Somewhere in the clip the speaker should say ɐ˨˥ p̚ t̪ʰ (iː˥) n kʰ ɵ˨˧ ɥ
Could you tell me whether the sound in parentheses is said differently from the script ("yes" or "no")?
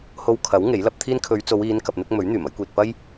no